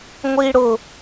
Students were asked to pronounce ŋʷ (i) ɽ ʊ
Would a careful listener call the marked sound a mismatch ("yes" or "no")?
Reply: no